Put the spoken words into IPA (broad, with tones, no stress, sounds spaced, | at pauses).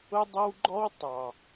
ʊ˦ dˤ ʌ˦ w ɡ͡ǃ ɔ˦ w tˤ ɑ˨